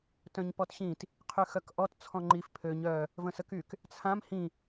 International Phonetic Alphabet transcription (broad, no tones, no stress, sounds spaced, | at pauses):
t œ̃ ɲ p ɔ t ɕ ĩ t | qʰ y x œ k ʔ ɔ t t͡sʰ ɔ̃ ŋ͡ǃ i f pʰ ø ɲ œ | v ə̃ s ə k y k | t͡sʰ ã m h ĩ